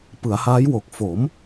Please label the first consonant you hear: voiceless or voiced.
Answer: voiceless